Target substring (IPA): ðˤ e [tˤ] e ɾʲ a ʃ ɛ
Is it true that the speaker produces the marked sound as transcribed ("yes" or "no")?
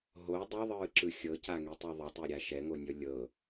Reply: yes